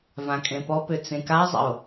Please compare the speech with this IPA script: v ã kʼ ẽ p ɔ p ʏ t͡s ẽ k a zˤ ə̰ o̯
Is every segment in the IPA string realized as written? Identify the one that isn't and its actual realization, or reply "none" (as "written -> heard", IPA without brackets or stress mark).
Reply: none